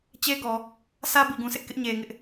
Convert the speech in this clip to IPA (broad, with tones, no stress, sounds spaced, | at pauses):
t͡ɕ e˦ ɡ ɔ˨ | sʰ ä˦ b i˨ ɡ ũ˨ s ɪ˦ ʔ k ɪ˦ ʔ ɲ e˨ ŋ ɪ˦ ʔ